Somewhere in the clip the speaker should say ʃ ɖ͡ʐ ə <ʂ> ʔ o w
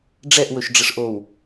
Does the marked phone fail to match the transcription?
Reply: no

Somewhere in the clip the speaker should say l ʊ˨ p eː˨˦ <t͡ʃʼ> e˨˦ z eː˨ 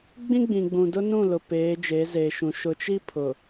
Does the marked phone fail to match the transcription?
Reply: yes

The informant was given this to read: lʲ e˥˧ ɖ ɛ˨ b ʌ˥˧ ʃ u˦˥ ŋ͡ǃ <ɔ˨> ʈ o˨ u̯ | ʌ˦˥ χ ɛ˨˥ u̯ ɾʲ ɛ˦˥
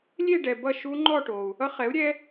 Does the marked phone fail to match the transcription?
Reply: yes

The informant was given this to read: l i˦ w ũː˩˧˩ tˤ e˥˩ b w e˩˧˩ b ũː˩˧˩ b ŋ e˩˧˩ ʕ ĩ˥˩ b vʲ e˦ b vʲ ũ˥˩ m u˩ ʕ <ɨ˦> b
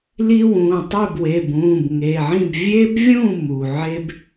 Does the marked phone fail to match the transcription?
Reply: yes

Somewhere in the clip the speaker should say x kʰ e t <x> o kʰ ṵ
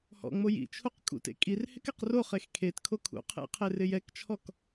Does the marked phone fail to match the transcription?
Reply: yes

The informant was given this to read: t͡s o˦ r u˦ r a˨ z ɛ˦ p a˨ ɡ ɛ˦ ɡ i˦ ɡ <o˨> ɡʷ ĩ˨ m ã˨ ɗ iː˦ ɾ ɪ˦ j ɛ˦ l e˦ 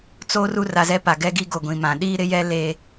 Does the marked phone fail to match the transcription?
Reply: no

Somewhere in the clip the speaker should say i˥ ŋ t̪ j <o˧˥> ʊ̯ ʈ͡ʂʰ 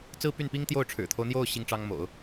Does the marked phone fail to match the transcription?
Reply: yes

